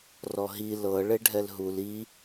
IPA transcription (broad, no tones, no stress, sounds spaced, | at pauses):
r ɔ ɦ i l ɤ ɭ e ɖʱ ɛ l ɦ u l i